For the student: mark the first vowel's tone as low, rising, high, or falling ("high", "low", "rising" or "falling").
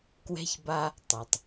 high